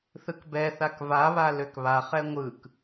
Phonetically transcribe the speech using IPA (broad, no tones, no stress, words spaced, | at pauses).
θɯkbɛθak vaβa løkβaχɛ ŋʷɯk